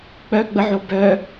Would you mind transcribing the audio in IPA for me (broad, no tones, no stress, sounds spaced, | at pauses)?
k͡p œ ɡ͡b ə ʕ o b œ